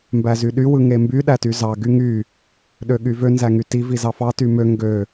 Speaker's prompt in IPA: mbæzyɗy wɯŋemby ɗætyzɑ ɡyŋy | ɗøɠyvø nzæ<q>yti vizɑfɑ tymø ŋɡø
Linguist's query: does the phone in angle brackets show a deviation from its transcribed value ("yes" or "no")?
yes